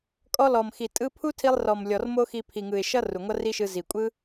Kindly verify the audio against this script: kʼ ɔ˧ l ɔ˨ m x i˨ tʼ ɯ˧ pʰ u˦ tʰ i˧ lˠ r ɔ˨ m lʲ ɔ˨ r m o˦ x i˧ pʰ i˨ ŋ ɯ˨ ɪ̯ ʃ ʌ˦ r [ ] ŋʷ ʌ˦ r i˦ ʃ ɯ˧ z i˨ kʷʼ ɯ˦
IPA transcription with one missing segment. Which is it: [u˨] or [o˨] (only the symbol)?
u˨